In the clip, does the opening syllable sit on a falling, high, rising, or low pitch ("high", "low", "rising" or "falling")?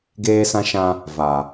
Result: high